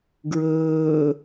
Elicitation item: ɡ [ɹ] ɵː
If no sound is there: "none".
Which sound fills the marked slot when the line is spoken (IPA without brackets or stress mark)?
ɹ